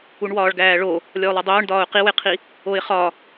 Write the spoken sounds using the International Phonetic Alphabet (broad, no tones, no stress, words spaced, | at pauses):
uɳwɒːɭɡæːɭo | lʲɒʊ̯lˠedˤoːɳ dɒːʊ̯qiweqʰi | oɪ̯χɒ